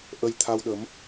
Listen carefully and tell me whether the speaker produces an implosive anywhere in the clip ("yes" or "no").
yes